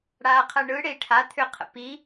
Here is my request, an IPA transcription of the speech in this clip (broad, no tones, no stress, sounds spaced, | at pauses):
ɽ a qʰ ɜ ɳ ɯ ɽ e i̯ ʈʰ a t̪ʰ ʏ qʰ ə̰ p i